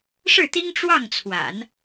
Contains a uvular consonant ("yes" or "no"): no